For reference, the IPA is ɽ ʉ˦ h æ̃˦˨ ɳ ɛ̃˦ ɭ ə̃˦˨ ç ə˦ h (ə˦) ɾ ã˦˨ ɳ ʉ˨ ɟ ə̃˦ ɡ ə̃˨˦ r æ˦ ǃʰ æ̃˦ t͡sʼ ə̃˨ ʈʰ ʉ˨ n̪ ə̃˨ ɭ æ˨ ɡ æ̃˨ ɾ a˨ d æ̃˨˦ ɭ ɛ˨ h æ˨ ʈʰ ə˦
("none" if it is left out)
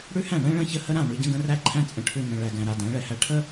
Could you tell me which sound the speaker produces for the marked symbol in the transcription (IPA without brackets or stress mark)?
ə˦